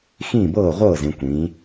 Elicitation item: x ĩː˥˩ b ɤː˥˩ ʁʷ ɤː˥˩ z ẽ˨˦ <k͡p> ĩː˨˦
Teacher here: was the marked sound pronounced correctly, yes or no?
no